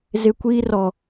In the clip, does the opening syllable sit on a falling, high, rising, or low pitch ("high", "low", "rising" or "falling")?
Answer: high